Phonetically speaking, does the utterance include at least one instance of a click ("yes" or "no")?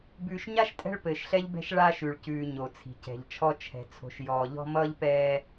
no